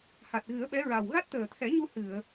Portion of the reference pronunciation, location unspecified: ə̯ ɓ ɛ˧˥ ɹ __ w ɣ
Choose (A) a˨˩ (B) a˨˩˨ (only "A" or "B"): A